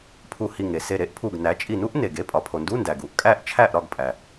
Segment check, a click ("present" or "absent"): absent